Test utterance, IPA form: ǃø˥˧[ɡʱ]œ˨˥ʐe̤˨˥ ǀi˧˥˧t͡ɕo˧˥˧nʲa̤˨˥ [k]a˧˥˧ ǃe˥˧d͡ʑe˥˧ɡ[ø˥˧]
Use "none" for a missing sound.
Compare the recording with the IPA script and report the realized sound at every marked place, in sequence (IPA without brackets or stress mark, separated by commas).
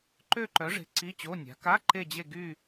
ǃ, k, y˥˧